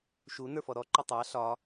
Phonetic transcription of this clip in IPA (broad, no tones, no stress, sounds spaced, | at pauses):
ʃ u n ə˞ f ɔ ɾ ɔ ǃ ɒ tˤ ɑ ɬ ɒ